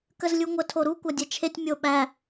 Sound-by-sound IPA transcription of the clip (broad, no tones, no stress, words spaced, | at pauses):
kəzlʲuŋʷə tʰoɾu kʷadʲɛt͡ʃʰetʲ mʲoɓæ